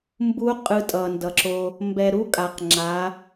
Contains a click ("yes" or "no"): yes